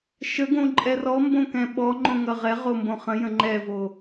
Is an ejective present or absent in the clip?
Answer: present